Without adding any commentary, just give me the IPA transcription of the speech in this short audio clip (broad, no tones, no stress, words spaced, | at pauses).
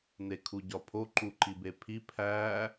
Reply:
nekʰuɟɒpʰo ǃuǃibepʰi pʰæ